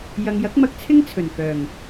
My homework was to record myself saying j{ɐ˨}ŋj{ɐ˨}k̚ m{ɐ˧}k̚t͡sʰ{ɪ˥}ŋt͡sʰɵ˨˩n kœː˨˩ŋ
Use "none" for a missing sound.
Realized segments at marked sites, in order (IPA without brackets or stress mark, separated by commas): ɐ˨, ɐ˨˥, ɐ˧, ɪ˥